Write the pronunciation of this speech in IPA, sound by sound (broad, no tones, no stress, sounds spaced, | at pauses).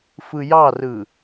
f ɯ j ɑ r ɯ